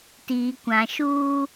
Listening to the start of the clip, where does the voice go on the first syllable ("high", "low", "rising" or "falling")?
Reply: low